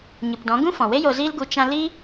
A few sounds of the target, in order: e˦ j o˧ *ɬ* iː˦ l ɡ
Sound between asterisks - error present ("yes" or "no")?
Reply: yes